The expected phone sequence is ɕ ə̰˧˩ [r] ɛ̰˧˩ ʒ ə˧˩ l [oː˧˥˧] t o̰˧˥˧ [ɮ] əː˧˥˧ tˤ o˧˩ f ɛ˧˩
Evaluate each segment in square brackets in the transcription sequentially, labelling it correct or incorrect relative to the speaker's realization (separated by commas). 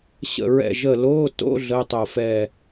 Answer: incorrect, correct, correct